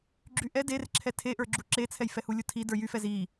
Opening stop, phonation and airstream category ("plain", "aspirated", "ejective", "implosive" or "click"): click